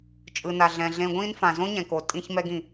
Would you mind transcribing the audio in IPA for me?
t͡ʃʼ ɯ˩ n a˩ ɮ ɛ̃˩ ɮ ẽ˧ ɡʷ ĩː˥ n f ã˩ z õ˥ ɲ ɛ̃˩ k o˩ tʼ ĩ˧ ç m ɛ˧ ɡ ĩ˩

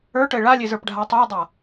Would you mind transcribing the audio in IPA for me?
ə˞ ʈ ə e̯ ɭ a lʲ e z ə˞ p ɖʱ a tˤ ə˞ e̯ dˤ a

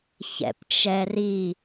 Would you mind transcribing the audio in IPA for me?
ç ɛ̰ p t͡ʃ ɛ r i

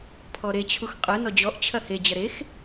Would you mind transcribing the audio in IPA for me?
pʰ ɔ ɾ e t͡ɕʰ u x qʼ ɯ n ɔ d͡ʑ ɔ ʔ t͡ɕʰ ɐ h e d͡ʑ ɐ ɾ e x

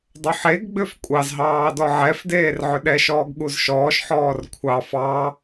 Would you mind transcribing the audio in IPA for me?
dˤ ɵ ħ e ɡ ɡ͡b ʏ f kʷʼ ɑ z ɦ ɑː d ɔ ʕ ɛ f d eː r ʕ ʏ ɗ ɛ ʃ ɔː ɡ ɠ u z ʃ ɔː ʃ ħ ɔː r kʷʰ ɑ f ɑ

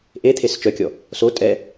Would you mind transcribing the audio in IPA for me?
ʔ e t̪ʰ e s t͡ʃ œ kʲ ɔ | s o tʼ ɛ

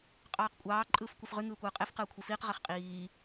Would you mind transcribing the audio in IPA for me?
qʼ ɑː q kʷʼ ɑː ǃʼ ɯː f kʷ i f ʁ y ŋ ɯː kʷ ɯː qʼ e f q ɯː kʷʰ i f iː q ʁ e χ qʼ iː

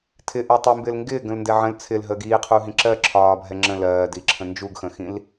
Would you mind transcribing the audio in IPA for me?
tʰ ɪ ʔ ɜ tˤ i m b ɪː l ŋ ɡ ɪː ɡ ə̃ l n d ɛ ʕ ə̃ l t͡sʰ ɪ l ɦ əː ɡ iː qʰ u ɦ ĩ ǁ ɜ ǁʰ ɒː bʱ ɛ ŋ͡ǁ ə̃ l ɜː d i ǁʰ ə̃ n d͡ʒ u ɡ x ə̃ x ĩ l

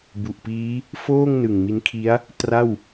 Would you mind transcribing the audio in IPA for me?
b u˨˩ ʔ p iː˦˥ | f oː˥˩ ŋ n ɯ˨˩ ŋ m i˦˥ n kʰ i˦˥ a̯ | t r a˥˩ w

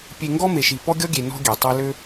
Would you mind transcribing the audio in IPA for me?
pʲ e˨ ŋ ɡ ɔ˦ m e˨ ʃ i˨ p ɔ˦ ɡʲ ɔ˦ ɡʲ e˨ n ɔ̤˦ ɡʲ e˩ tˤ e˦ l ø˥

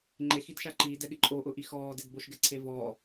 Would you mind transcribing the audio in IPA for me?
ŋ͡ǃ e x i d ʃ a ǃ iː d ɛ ɠ ɪ ǃʼ o ʔ ʊ ʔ i x ɔː d e d b o ʃ ɡ ɛ ǀʰ e v ɔː

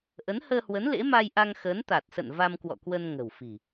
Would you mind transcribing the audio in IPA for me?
ʔ ə˨˦ n h əː˧ h w ə˨˦ n l ḛ˧˥ m a˧ j ʔ a˧ ŋ x əː˨˦ n t̪ a˨˩ t̚ s ə̰˧˨ n v a˧ m k w ɔ̰˧˨ k w ə˧ n ŋ ə̤˨˩ w f i̤˨˩

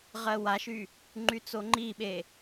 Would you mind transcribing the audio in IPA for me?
ʁ ɜ w a ʃ y | ŋ͡ǃ y t͡s o ŋ͡ǃ i ɓ e

